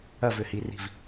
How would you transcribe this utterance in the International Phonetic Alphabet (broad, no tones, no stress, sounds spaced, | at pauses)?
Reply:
ɐ v ʏ h i r i̤ v